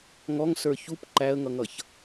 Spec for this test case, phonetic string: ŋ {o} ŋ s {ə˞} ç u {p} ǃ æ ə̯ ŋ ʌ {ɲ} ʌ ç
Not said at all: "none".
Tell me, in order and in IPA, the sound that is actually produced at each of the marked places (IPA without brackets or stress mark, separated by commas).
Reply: ɔ, ə˞, p, ŋ